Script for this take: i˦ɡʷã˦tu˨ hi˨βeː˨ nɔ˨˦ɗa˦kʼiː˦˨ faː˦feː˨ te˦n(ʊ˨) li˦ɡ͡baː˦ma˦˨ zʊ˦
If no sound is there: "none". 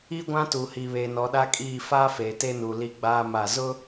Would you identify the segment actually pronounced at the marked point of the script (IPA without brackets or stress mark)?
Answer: u˨